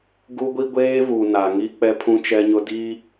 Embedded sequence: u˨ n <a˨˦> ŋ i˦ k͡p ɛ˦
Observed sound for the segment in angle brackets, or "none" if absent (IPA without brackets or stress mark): a˨